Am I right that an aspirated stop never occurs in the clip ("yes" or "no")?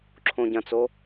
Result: no